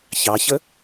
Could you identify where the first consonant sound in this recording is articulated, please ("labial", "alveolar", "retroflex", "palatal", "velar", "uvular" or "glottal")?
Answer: palatal